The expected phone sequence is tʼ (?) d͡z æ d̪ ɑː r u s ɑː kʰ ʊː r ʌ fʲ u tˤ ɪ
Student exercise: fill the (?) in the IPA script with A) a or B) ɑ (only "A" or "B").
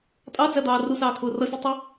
B